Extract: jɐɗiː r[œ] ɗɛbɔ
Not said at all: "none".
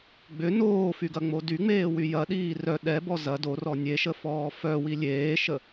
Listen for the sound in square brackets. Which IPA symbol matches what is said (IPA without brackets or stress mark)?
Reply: œ